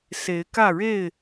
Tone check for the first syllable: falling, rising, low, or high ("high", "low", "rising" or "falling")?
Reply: rising